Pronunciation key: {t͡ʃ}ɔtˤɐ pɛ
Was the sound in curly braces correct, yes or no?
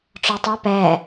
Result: no